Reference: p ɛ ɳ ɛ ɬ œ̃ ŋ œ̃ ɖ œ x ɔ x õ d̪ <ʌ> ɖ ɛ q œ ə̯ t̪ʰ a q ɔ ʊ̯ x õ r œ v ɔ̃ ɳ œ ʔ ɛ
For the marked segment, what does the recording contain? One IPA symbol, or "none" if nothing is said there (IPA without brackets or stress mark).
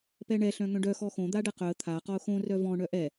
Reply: a